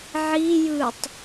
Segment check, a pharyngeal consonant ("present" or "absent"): present